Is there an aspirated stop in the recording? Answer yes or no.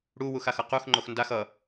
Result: no